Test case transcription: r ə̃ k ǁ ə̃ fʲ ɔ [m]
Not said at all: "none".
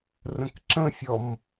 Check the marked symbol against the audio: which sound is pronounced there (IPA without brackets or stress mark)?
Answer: m